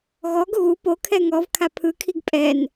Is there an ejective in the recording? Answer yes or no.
yes